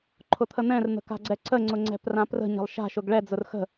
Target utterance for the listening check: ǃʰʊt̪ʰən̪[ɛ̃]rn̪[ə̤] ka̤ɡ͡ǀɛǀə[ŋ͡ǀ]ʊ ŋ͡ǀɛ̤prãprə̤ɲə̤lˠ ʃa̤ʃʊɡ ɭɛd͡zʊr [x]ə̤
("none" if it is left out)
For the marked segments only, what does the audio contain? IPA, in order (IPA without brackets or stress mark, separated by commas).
ɛ̃, ə̤, ŋ͡ǀ, x